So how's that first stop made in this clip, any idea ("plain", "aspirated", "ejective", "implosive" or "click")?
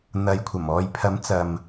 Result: aspirated